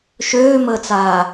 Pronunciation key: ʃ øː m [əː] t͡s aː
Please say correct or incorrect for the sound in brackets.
correct